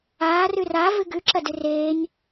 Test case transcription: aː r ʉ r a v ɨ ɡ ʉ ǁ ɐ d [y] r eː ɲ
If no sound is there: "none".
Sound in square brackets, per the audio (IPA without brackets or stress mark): ɨ